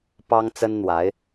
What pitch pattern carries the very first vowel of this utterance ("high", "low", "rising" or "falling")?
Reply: high